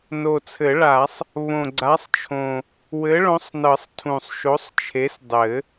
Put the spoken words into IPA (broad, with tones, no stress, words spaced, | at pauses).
no˨˩t͡sʰɘ˨˩˦ɭa˨˩˦sˤ | βõ˨˩ɡ͡ǀa˨˥sˤt͡ʃʰõ˨˩ | wɘ˨˥ɭõ˨˥sˤnɤ˨˩˦sˤ tʰũ˨˩sˤʃo˨˥sˤt͡ʃʰe˨˥sdˤɘ˨˩˦